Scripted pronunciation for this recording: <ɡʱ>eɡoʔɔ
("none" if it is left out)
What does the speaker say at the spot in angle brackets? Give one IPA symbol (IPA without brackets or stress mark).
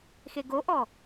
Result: x